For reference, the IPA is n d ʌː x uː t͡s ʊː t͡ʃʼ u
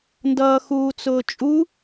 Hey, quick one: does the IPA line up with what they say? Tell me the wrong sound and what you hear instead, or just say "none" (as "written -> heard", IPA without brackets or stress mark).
none